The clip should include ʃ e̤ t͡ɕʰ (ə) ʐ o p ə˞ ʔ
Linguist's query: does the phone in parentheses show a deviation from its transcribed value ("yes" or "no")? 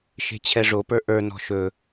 yes